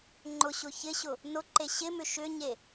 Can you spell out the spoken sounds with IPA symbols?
ŋ͡ǃʊɕʊ çɪɕʊ | nʊǃe ɕɪmʏ ʃʏɲe

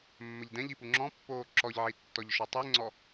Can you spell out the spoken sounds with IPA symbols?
mːəʎdɛ̃ʎi puŋ͡ǁɔ̃pːoː ǁɔʎʕi tːɔʎʃɔtˤiŋ͡ǀɔ

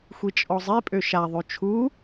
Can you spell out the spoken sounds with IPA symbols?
xʷit͡ʃʼɔzˤipʼø ʃaðˤø t͡ʃʰu

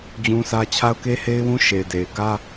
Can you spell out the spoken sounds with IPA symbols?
d͡ʑũ˦sä˦ t͡ɕʰa˦ʊ̯ke˦he˦ɪ̯wũ˦ ʃe˨ɪ̯de˨ɪ̯ ɡä˦

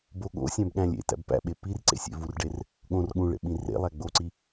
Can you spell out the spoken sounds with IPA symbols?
bo ɠo̰ sʲæ̃bɠæ̃lʲḛtæ̰b pæ̰ɓe pir ǀḛsʲḛvurɖer | ɠõr ɠũɭḛ ɓĩrḛlˠæ ɡ͡boǀi

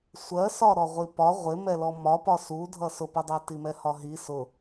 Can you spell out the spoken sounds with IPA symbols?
sʷɜsɒ ɾɔʁʷipɒ ʁʷɪ mɛlɔmɒpɒ sudʱʌ sʊpʊdˤæ timɛhɒɦi sʊ

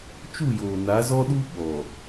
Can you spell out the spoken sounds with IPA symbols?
t͡ʃu˦˨joː˨ na˨˦zɔ˦ɗu˦ ɓɔ˨

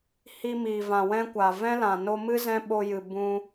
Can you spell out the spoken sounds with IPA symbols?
hi˧miː˨vã˨ wɛ̃˦kʷa˨ vɛ̃˦lã˨no˧mɨ˦ zɛ̃˦ɓo˧jɨ˨ bũ˧

